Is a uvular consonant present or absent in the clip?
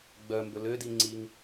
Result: absent